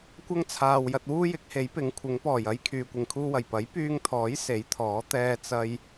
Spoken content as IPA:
kʷ ɐ˥ ŋ t͡sʰ aː˨ w j ɐ˧ t̚ w uː˥ j ɪ˨˥ k̚ h e˨˥ j p ɪ˨˥ ŋ kʷʰ ɪ˨˥ ŋ p ɔː˨˩ j ɐ˥ j kʰ yː˨ kʷ ɪ˨ ŋ kʰ uː˥ w ɐ˨˩ j p ɐ˨˥ j p yː˧ ŋ t̪ʰ ɔː˨˥ j s e˨˥ j t̪ʰ ɔː˨˥ t̪ ɛː˧ t͡s ɐ˧ j

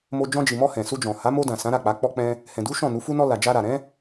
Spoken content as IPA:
m o˧ d͡ʒ ɔ̃˧ d͡ʒ i˨ m ɔ˧ h ɛ̃˨ s u˧ d͡ʒ ɔ̃˨ h a˨˦ m o˧ d ã˨ s ã˨˦ ɾ a˦˨ k͡p a˨˦ k͡p ɔ˧ k͡p ɛ̃˧ | h ɛ̃˨ d u˨˦ ʃ ɔ̃˦˨ n u˨˦ f u˦ n ɔ˦ l a˧ d͡ʒ a˧ ɾ a˨ ɾ ɛ̃˨˦

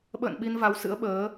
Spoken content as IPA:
ɓ ə̰ː˧˨ n ɓ i˧ n v a˨˦ w s ɨ̰˧˥ ə̯ ɓ əː˨˦

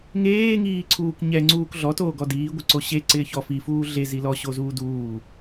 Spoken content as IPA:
ŋ eː ŋ iː ǀʰ uː k ɲ ɛ ŋ͡ǀ uː k ɮ ɔ t oː ɡ ɔ d iː ɡʷ ɪ ǀ o ɕ e ǀ ɪː ç ɔ f i f uː ɮ e z i l ɔ ɕ o z uː d uː

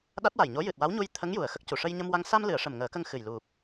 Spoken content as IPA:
ɗ a˦˥ t̚ w a˨˩ j ɲ o˧˥ j ɨ˨˩ t̚ w a˧˥ w ɲ u˧ j t̪ʰ ə˧˥ ŋ j u˨˩ ə̯ x ə˦˥ k̚ c u˨˩ ʂ ə˧ j ɲ ə˧ m w a˧ ŋ s a˧ m l ɨ˨˩˨ ə̯ ʂ ə˨˩ m ŋ əː˨˩˦ k ə˧ ŋ x ɨ˨˩ j l u˨˩ p̚

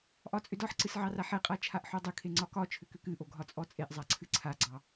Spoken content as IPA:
ʔ ɒ t͡sʼ ʏ d ɒ ħ ǀ ɨ s ʕ ɑ r a ħ e qʼ a t͡ʃʰ a ʔ ħ o dˤ ʏ kʰ e ŋ͡ǀ ɒ k ɒ t͡ʃʰ ʏ k ʏ k ɨ ʔ o ɡʱ ɒ t͡sʼ ɔ t͡sʼ e ʔ zˤ a ǀʰ ɨ ǀʰ a ɡ͡ǀ ɑ

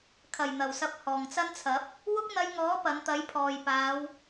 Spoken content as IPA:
kʰ ɐ˨˩ j n̪ ɐ˨˩ w s ɐ˨ p̚ h ɔː˨˩ ŋ t͡s ɐ˥ n t͡sʰ ɐ˨˥ p̚ | w ʊ˥ k̚ n̪ ɐ˧ j ŋ ɔː˨˥ p ɐ˨˧ n t̪ ɐ˨˥ j pʰ ɔː˨ j p aː˨˧ w

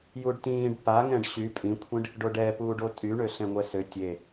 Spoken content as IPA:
j u ɖ t ĩː ɖ p a ŋ ɛ̃ ɖ ɕ y pʼ ĩ kʷʰ ĩ ɖ | ɖ o ɖ ɛ p uː ɖ o tʼ y ɳ ø ɬ ɛ̃ ŋʷ ɛ s ø tʲ e

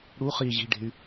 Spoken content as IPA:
ɽ u χ i ʑ i̤ ɖ e̤ y̯

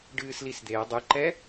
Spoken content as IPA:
ɖ ɨː s l i s d̪ e ɐ̯ dˤ ɨ ǃ ɛ

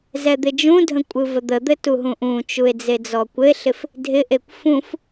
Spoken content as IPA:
z ɛ d̪ ɪ d͡ʒ ũ dʱ ə̃ kʷʼ ɯ v ə d̪ ə d̪ ɘ t u ɦ ũ ʔ ũ t͡ʃ u e̯ d͡z e d͡z ɔ kʷ ɘ e̯ ɬ ɪ f | dʱ ɪ ʔ e kʷ f ũ f

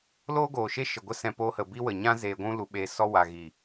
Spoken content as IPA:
l oː˦ ɡ oː˨ ʃ e˦ ʃ ə˨ ɡʷ ə˦ s ɛ̃˧ p oː˧ h ə˨ b i˦ w ə˨ ɲ ã˦ z eː˧ ɡʷ ũ˦ l u˧ ɓ eː˧ s ɔ˦ w a˨ ɣ i˨

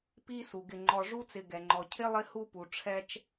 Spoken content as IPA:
p i˥ s u˩ ɡ ɪ˨ ŋ͡ǃ ɔ˨ ʐ u˥ t͡s ɪ˨ ɡ ɛ˩ ŋ͡ǃ ɔ˩ cʰ ɪ˥ lˠ ɪ˦ h u˦ p u˩ ʈ͡ʂʰ ɛ˥ t͡ʃ

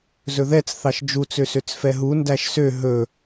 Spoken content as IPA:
z ɵ ð ɛ t͡s θ ɑ ʃ d͡ʒ u t͡s ø s ø t͡s f ɛ ɦ u n d æ ʃ s ø ɦ ɵ

